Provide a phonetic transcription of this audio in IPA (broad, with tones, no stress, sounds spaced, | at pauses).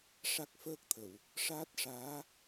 ʂ a˦˥ k̚ f əː˦˥ k̚ t̪ʰ ə˨˩˨ w | ʂ aː˦˥ t̚ ʂ aː˧˥